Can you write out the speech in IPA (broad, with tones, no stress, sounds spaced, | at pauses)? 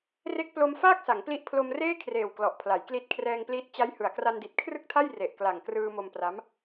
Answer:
r e˦˥ k̚ p l o˧ m f aː˥˩ k̚ s a˩˦ ŋ p l i˦˥ ʔ pʰ l o˧ m r eː˥˩ kʰ r eː˨˩ w k l ɔ˨˩ ʔ pʰ l a˩˦ j k l i˦˥ t̚ kʰ r ɛː˧ ŋ p l iː˦˥ t̚ t͡ɕ a˦˥ j h ɯ˩˦ a̯ k r a˧ n d i˨˩ t̚ kʰ r ɯ˥˩ k̚ tʰ a˥˩ j r e˨˩ ʔ k l a˨˩ ŋ k r ɯː˧ m o˧ m p r a˦˥ m